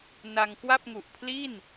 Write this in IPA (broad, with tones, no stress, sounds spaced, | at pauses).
n a˧ ŋ k w a˥˩ p̚ ŋ u˨˩ ʔ pʰ l i˥˩ n